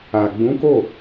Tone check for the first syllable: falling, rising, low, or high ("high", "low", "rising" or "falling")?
low